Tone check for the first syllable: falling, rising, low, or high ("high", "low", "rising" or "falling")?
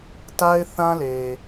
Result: high